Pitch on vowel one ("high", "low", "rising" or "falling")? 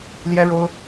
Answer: high